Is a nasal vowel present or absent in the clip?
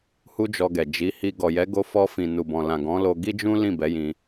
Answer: present